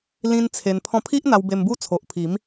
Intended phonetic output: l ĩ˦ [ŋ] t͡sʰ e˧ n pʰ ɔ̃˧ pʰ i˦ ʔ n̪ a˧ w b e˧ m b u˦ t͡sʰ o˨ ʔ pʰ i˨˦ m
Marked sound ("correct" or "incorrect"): incorrect